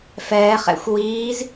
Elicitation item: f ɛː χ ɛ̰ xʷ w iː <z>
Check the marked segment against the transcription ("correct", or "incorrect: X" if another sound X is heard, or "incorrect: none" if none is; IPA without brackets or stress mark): correct